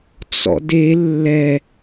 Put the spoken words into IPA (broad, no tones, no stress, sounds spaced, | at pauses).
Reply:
t͡s ɔ̰ d e lː ɛ